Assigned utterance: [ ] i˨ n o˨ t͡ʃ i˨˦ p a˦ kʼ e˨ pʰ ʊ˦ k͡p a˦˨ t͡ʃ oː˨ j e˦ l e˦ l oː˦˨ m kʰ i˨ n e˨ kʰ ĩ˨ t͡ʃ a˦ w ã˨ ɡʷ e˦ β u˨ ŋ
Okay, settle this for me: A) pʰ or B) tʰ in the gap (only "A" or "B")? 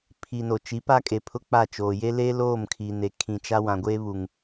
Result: A